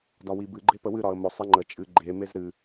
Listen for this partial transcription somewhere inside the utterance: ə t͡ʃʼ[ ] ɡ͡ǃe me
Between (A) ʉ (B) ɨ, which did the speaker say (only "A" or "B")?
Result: B